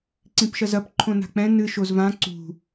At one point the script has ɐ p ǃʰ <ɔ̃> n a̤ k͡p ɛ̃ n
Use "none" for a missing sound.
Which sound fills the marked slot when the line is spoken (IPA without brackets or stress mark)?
õ